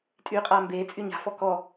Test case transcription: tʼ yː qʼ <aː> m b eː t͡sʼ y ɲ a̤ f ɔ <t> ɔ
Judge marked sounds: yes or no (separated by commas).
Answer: yes, no